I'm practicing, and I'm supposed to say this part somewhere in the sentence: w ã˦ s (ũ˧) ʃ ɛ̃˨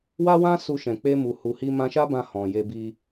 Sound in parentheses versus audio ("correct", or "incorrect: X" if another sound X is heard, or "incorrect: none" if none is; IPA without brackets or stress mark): incorrect: u˧